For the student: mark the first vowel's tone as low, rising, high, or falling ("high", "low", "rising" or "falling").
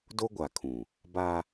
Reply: high